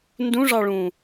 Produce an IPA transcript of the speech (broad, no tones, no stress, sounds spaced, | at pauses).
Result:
n d ũ ʐ ɑ ɭ ũ